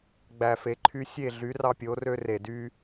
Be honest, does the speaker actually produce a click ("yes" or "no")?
yes